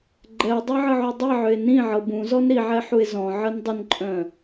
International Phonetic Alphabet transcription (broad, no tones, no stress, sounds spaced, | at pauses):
ɡ͡ǃ ɛ o̯ dˤ ɤ ʕ ə ʕ u dˤ i ʕ ʏ e̯ n ĩ ʕ ɤ b ũ z ɔ n ɾ i ʕ ɛ ħ u e̯ z ɔ̃ ʕ ə n dˤ ə n ǃʼ œ̃